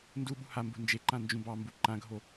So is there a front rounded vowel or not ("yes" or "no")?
no